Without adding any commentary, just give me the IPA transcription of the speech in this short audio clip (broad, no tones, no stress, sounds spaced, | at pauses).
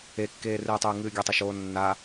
e kː eː r ɨː tˤ ɨː ŋ ɨː ɡʲ ɐ tˤ ɐ ʃ oː nː a